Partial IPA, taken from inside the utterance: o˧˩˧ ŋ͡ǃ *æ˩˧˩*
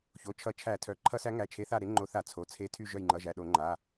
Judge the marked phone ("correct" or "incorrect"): incorrect